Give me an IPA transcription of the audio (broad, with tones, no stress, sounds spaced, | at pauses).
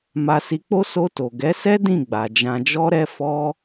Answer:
m a˧ s i˧ k͡p o˦ s o˧ t o˨ ɡ ɛ˨˦ s ɛ˦ d ĩ˦˨ ɡ͡b a˨ d͡ʒ ã˧ d͡ʒ ɔ˦ ɾ ɛ˦ f ɔ˦